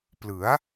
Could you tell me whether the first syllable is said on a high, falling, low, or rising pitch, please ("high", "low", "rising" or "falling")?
rising